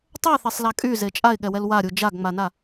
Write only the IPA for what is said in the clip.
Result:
tˤ ə ɪ̯ θ e sˤ l a kʼ y z e t͡ʃʼ a ɪ̯ ɠ ɛ w ɛ l w a ɾʲ u d͡ʒ a ɡ ŋ͡m a n a

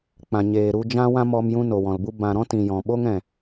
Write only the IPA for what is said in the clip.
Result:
k͡p ã˨ ɲ eː˨ ɾ u˧ d͡ʒ ã˦ w ã˦ m ɔ˧ m j ũ˧ n o˨ w ɔ̃˨ l b u˦ b ã˨ ɾ ɔ̃˦ t ĩ˨ j ɔ̃˨ ɓ o˦ ŋ ɛ̃˨

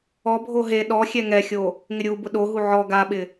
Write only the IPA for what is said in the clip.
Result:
ɔ bʱ o ɦ e ɗ ɔ xʲ ɛ ŋ ɛ xʲ o | ŋ ɪ ɾʲ u b ʊ ɗ o ɦ u ʕ ɔ ɡ a ɓ ɪ

